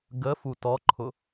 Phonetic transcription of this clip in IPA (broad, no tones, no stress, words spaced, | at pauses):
ɡəfu tɔǃʰʊ